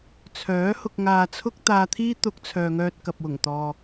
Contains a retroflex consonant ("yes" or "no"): no